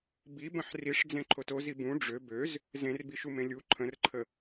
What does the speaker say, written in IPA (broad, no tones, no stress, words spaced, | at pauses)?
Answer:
bibə̃ħ riʂd͡zẽǃʰot ozi bũ ɖ͡ʐø bøz | zẽrbiʃumẽ lʲu ǃʰə̃rǃʰə